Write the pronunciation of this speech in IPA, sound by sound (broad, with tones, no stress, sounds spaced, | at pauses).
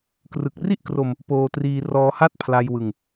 k r ɯ˨˩ k̚ r i˥˩ ʔ k r o˧ m | p oː˧ t r iː˧ r ɔː˧ h a˥˩ t̚ pʰ l a˧ j w ɯ˧ ŋ